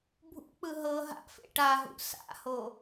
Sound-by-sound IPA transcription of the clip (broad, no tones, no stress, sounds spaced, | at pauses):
bʱ ṵ k͡p ɯ ɦ ɤ ɦ a̰ f ḛ ʈ a ɦ ṵ s a̰ h o